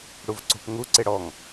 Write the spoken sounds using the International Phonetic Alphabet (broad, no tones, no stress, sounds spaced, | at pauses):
ɽ u v ǀ o̤ p ŋ u ǀ e ɽ ɔ ŋ